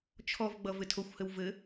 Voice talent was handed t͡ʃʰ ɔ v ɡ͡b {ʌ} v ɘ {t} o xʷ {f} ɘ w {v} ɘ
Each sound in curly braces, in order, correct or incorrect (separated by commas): correct, incorrect, incorrect, correct